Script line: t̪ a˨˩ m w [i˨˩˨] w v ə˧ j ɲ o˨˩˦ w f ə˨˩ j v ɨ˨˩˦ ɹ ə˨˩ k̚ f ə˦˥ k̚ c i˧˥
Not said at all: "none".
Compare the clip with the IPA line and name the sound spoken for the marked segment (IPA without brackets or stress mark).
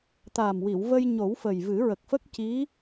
i˨˩˨